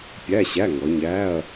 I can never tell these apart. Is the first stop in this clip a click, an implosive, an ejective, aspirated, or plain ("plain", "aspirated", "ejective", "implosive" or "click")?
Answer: plain